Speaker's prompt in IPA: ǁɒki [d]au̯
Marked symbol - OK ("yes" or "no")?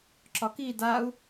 yes